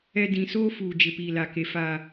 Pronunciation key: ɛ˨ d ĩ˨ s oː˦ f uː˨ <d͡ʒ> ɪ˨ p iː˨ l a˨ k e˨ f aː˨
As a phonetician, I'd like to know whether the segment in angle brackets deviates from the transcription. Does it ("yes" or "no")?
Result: no